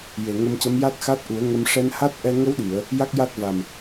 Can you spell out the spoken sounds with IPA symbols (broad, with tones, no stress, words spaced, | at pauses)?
je˨˩ŋə˧mcə˧˥m ja˦˥t̚xa˦˥t̚ʔu˨˩˦ə̯ŋə˧m ʂɛ˧nha˦˥t̚ʔɛ˧ ŋə˧˥wɗi˨˩˨ə̯ | ja˦˥k̚ja˦˥t̚va˨˩m